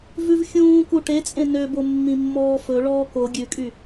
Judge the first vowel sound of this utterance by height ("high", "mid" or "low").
high